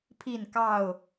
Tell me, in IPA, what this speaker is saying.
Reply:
pʰ i˥˨ n k ɑ˥˨ ʊ̯

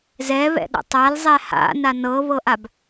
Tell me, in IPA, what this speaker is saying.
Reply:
z ɛ β ɛ̰ ɗ a̰ tˤ a l zˤ ɛ h a̰ n a n ɤ β ɤ ʔ a b

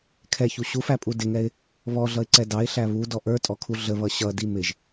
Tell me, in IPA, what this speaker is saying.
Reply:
kʰ ɛ ç u ɕ u f æ pʼ u d ɪ ŋ ɛ ɪ̯ | β ɔ ɮ ʌ ɪ̯ ǀ ɛ d ɑ ɪ̯ ɬ æ β u d ɔ ʔ ə˞ tʼ ɔ kʰ u ɮ ə β ʌ ɕ ʌ d i m ɪ ʒ

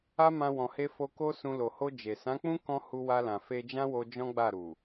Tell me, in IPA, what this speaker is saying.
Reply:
a˦ m ã˧ w ɔ̃˨ h e˧ f o˧ k o˦ s ũ˧ l o˨ h o˧ d͡ʒ e˨ s ã˨˦ k͡p ũ˦ k ɔ̃˦ h u˧ w a˧ l ã˨ f e˧ d͡ʒ ã˦ w o˧ d͡ʒ ɔ̃˦ ɡ͡b a˦˨ ɾ u˨

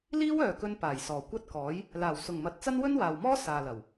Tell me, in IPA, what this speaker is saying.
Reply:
l iː˥ w œː˨ k ɵ˧ n p aː˨˩ j s ɔː˨˩ kʷ ɐ˥ t̚ k ɔː˨˥ j | l aː˨˩ w s ʊ˨˩ ŋ m ɐ˨ t̚ t͡s ɐ˥ n w ɵ˥ n w aː˨ w m ɔː˥ s aː˨ l ɐ˨˩ w

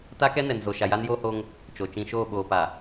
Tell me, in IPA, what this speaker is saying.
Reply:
t a˦ k ɛ˦ n ɛ˨ n z o˨ ʃ a˨ j a˦ n j oː˦ h o˦ ŋ | t͡ʃ o˨ t͡ʃ ĩ˨ ʃ oː˦˨ ɓ oː˨ p a˨

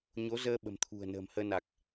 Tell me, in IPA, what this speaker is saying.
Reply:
ɲ o˨˦ z əː˧ ɓ ə̤˨˩ m t̪ʰ ṳ˨˩ ə̯ n ə̤ː˨˩ m h əː˧ n a˨˩ k̚

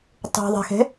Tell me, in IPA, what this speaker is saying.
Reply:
tˤ ṳ ðˤ e̤ x e̤

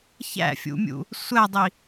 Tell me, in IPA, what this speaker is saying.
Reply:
ç æ̰ fʲ ṵ mʲ ṵ | sʷ æ dˤ i

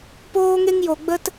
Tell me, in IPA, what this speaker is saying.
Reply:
p oː˦ ŋ e˦ ŋ j o˨ ɡ͡b ə˦ t

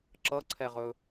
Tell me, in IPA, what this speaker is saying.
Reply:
ǁ ʌ ǀʰ ɛ ʁ ɵ

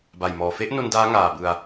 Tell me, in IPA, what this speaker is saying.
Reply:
b a˨˩ j m ɔː˨˩ f e˦˥ ʔ n o˧ n d aː˦˥ ŋ aː˨˩ b ɯ˧ a̯

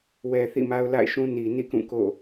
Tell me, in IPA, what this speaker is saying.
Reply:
w ɛ˨ θ ḭ˦˨ m a˦ ʊ̯ l a̰˦˨ ɪ̯ ʃ ũ˦ n i˨ n ḭ˦˨ k ũ˦˨ k o̰˦˨

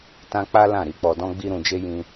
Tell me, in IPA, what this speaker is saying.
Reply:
t ã˦ k͡p a˦ l ã˦˨ ɾ i˧ k͡p ɔ˧ d ɔ̃˦ ɡ͡b i˦ ɾ ũ˧ d͡ʒ e˦ j ĩ˧

